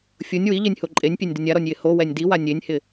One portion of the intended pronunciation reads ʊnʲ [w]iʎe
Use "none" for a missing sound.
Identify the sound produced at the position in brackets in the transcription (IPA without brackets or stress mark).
w